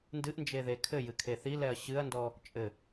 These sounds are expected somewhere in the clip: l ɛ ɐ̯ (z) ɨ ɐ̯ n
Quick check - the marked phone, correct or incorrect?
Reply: incorrect: ɕ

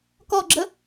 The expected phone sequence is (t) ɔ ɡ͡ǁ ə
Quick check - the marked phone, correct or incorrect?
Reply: incorrect: k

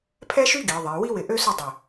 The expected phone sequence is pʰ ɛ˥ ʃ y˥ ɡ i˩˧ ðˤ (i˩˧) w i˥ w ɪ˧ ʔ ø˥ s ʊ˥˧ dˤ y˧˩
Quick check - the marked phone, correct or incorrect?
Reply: correct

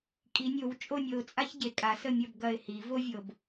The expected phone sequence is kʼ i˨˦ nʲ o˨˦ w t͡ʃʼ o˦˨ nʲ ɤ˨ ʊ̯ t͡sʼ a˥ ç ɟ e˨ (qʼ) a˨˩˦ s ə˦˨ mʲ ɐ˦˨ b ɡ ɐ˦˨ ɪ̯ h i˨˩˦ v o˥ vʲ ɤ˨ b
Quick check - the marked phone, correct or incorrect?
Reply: incorrect: kʼ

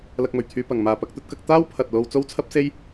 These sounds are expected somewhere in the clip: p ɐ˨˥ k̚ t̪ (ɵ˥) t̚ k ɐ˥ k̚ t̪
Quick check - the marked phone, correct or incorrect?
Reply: correct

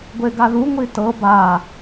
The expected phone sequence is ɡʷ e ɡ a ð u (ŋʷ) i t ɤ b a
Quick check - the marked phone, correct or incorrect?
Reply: correct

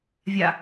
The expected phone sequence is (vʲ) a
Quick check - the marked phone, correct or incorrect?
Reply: correct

